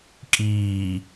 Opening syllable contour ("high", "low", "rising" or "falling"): low